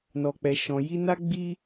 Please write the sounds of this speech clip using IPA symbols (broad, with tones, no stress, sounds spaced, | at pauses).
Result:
n ɔ˨ k͡p ɛ˨ ʃ ɔ̃˨ j i˧ n a˦ ɡ͡b i˦